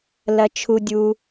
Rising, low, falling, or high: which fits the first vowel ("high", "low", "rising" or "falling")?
high